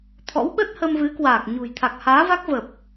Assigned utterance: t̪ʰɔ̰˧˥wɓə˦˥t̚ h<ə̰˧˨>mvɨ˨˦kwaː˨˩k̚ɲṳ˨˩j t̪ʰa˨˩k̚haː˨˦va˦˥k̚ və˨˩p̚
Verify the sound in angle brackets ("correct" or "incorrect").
incorrect